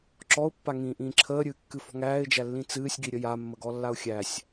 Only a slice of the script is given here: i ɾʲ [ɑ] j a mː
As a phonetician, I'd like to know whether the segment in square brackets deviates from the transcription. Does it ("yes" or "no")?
yes